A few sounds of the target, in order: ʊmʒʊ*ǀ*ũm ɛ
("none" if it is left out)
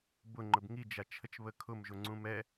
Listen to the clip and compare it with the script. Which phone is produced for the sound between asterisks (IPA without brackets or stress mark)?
ŋ͡ǀ